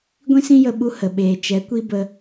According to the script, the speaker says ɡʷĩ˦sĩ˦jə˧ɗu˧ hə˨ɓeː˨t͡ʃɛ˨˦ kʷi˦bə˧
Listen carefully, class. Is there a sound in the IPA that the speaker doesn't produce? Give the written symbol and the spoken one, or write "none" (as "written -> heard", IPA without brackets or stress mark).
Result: ɗ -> ɓ